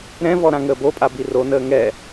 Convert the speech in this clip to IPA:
ɾɛ̃vɔ ɾãŋəːbopʼa bironəː ŋɛ

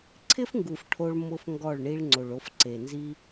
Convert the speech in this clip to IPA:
ǀʰɪ˦fŋɡu˨f ʈʰo˧ɭ mʊ˦fŋɡɔ˦˨ɭ ɳi˧ɭ ŋ͡ǀo˨ɭo˧fǀe˨ nzi˦

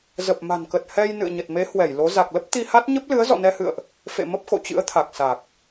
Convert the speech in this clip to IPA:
zə˨˩p̚ma̤˨˩nkə˨˩t̚ hɛ˧j nɨ̰˧˨ə̯ɲə˨˩t̚me˨˦ hwɛ˧˩jlo˨˦ za˨˩k̚lə˦˥p̚ t̪i˧ha˦˥t̚ ɲə˦˥p̚lɨ˨˦ə̯ zɔ̰˧˨nɛ˧hɨ̰˧˨ə̯ʔ | fḛ˧˨ mə˦˥p̚xo̰˧˨t͡ɕɨ̰˧˥ə̯t̪ʰa˨˩k̚ sa˨˩k̚

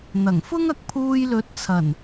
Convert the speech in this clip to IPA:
n̪ɐ˨˩ŋfʊ˥ŋɐ˧k̚ pʰuː˧jlɵ˨˥t̚ t͡sʰɐ˨˩n

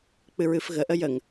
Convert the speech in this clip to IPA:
k͡pɨɹɨfɣə ʔəjəŋ

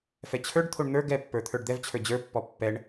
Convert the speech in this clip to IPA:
fɛt͡ɕʰə˞ɖt̪ʰoɳ n̪ə˞ ɡɛpːə˞ t̪ʰə˞ɖd̪ɛvt͡ɕʰə˞ d͡ʑə˞pːɔ pːɛɳ

